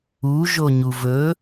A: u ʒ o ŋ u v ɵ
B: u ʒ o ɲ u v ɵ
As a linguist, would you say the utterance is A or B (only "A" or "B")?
B